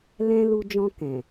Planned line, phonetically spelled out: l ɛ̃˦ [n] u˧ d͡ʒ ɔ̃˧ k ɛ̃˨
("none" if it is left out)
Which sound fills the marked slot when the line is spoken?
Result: l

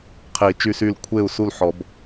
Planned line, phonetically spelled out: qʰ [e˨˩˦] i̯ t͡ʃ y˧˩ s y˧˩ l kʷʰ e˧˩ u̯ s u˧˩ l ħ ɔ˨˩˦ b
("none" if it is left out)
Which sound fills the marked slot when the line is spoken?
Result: e˨˩˦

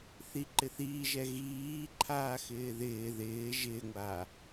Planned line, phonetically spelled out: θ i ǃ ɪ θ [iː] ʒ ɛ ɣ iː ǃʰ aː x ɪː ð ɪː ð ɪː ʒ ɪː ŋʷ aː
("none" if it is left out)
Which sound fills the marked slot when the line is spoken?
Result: iː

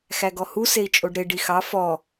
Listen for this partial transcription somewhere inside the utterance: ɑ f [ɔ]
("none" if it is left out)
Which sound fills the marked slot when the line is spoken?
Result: ɔ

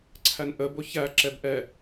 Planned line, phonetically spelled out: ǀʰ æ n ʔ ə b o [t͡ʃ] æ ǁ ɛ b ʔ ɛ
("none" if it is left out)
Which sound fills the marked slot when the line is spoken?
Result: ç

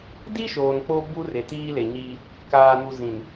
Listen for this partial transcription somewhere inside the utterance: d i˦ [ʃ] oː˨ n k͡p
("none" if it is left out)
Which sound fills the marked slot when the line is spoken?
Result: ʃ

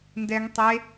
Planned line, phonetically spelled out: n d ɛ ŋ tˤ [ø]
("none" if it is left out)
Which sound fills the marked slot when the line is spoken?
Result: e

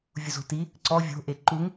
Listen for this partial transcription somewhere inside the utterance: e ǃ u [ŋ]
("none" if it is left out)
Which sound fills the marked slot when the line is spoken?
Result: ŋ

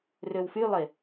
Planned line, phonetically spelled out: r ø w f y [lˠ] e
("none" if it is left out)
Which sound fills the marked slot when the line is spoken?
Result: lˠ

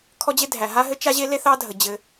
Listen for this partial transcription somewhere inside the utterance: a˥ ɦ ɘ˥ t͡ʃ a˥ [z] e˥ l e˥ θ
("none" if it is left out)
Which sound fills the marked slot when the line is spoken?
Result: ʑ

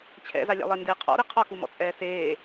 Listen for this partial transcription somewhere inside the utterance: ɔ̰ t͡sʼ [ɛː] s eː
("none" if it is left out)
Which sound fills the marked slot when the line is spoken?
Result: ɛː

